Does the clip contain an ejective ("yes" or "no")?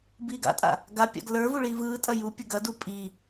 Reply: yes